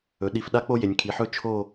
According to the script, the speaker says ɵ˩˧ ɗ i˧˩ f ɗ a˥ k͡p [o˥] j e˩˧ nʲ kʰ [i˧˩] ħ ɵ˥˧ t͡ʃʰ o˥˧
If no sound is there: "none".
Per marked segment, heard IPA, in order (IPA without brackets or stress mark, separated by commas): o˥, i˩˧